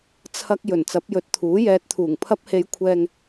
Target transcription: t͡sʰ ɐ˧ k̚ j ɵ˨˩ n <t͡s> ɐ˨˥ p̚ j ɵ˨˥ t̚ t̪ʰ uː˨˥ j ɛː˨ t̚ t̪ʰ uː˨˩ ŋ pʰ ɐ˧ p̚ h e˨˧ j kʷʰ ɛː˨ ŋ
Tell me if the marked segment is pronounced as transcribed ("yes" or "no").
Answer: yes